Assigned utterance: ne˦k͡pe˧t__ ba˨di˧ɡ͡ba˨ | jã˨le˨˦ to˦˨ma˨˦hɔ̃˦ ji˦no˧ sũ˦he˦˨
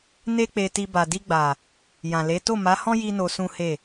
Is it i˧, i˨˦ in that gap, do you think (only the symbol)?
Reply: i˧